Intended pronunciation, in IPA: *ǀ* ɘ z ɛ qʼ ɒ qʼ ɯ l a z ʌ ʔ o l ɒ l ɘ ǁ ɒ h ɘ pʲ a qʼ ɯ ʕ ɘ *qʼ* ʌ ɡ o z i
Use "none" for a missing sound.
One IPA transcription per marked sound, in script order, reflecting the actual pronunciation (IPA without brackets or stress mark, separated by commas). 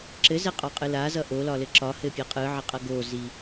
ǁ, qʼ